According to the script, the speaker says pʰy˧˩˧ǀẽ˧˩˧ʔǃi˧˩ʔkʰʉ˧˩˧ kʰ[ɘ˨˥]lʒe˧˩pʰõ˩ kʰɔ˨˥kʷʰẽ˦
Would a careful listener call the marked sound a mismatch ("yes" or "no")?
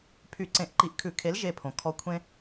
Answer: yes